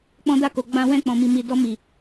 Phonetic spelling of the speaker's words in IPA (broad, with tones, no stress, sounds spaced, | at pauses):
k͡p ɔ̃˧ d a˧ k o˨ ɡ͡b ã˧ w ɛ̃˧ k͡p ɔ̃˨ m i˨ m i˨ d ɔ˧ m i˨